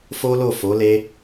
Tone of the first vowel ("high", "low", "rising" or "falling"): high